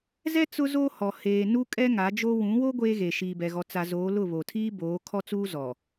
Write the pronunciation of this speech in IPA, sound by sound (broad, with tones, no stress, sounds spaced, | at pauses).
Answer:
z ɛ˦ t͡s ʊ˦ z o˦ h ɔ˨ h eː˨ n u˦ kʼ ɛ˦ ŋ a˨˦ d͡ʒ o˦ w ũ˨˦ w o˦ ɡʷ eː˦ ɣ e˨ ʃ iː˨ b ɛ˨ ɣ ɔ˨ t͡s a˨ z oː˨˦ l ʊ˦˨ β o˨ tʰ iː˦ b oː˨˦ kʰ ɔ˦ t͡s uː˦ z ɔ˨